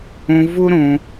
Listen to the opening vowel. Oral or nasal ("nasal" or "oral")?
nasal